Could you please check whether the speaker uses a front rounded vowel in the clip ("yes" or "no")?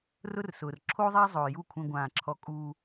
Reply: no